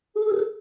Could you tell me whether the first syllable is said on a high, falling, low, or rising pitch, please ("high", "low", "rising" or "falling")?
high